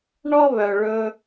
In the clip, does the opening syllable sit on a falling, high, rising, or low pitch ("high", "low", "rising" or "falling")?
high